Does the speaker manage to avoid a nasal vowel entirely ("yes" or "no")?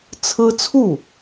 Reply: yes